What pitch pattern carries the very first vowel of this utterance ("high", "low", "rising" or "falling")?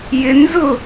high